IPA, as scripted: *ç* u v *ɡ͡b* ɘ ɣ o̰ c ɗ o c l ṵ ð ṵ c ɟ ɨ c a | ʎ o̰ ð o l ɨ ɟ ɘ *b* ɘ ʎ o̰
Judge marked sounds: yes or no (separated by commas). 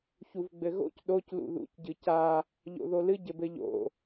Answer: yes, yes, yes